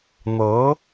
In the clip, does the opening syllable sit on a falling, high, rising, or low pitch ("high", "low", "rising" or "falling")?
rising